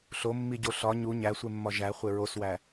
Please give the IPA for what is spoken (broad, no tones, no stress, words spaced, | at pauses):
ɬomːiɟo ɬɒ ɲu ɲæsʷemːɒ ʒæχʷe ɹoswæ